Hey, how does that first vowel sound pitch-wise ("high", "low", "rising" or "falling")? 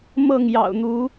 falling